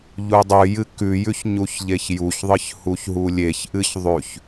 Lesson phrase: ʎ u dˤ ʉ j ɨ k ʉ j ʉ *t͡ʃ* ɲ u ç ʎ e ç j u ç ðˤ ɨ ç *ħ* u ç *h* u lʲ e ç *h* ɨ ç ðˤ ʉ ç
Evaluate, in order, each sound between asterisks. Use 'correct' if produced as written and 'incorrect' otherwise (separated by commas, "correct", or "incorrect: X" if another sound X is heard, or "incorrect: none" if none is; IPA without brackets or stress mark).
incorrect: ç, incorrect: h, incorrect: ɦ, incorrect: ʔ